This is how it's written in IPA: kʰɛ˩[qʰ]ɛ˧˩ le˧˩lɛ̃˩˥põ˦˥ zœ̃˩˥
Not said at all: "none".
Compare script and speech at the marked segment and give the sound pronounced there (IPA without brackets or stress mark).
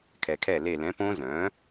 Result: kʰ